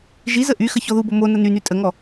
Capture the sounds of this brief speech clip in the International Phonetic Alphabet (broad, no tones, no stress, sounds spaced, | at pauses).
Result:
ʒ i z ə ʔ y x ə ç ɔ ð u b o m o n ə n y n y tʼ ə ŋ ɔ